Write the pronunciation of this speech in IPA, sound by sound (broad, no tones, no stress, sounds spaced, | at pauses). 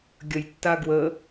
ɡʲ ə j tː a ɡ w ə